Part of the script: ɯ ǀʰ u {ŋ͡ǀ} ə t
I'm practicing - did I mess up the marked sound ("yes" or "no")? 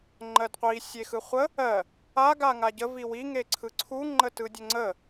yes